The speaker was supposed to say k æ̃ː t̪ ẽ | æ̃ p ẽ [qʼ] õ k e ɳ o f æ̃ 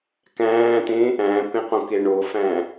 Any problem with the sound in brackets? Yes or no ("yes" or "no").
yes